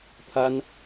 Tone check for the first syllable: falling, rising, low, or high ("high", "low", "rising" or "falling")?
high